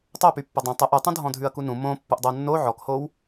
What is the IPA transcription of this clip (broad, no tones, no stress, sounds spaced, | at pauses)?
tˤ o p y pː o dˤ ũ tˤ ə ʔ ʉ tˤ ũ dʱ ɔ̃ dʱ ʉ ɐ̯ k u n ũ m õ pː u ʔ dˤ o nː o ʕ ɔ k h o w